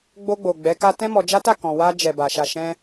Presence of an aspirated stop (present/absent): absent